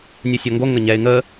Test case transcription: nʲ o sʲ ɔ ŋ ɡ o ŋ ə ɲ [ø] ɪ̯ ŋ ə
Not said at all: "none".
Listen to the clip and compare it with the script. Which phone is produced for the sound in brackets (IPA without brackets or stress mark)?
ɛ